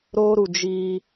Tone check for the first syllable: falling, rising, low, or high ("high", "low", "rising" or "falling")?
high